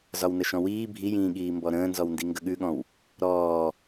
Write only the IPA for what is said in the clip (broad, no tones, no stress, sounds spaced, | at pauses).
z ɒ w n ə ʃ ɔ̃ w iː bʱ i j ĩː ɠ iː m b ɔ ɾ ə̃ː n z ɔ w n d i ŋ ɡ ə ɠ ʉ ɠ ɔ̃ w | ɾ ɔː